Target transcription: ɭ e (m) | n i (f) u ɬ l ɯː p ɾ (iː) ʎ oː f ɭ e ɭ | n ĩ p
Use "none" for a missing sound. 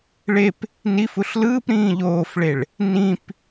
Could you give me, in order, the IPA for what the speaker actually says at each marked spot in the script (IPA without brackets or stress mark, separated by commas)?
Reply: p, f, ĩː